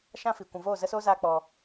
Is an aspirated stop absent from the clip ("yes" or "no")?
yes